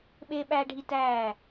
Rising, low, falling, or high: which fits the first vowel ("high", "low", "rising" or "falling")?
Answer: high